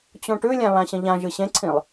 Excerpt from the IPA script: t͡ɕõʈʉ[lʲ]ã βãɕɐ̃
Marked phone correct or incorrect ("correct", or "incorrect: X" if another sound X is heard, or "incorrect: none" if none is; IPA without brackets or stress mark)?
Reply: correct